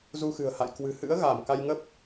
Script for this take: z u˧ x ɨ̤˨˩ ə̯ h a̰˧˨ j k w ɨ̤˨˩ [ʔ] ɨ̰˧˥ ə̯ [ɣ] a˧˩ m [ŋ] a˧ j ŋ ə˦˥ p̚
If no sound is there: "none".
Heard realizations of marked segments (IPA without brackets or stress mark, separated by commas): h, ɣ, k